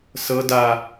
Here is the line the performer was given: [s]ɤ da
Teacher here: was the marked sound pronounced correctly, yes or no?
yes